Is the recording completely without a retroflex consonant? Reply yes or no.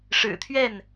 no